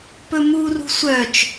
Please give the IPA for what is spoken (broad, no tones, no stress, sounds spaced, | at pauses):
p ɵ m u r ṳ sʷ œ t͡ʃ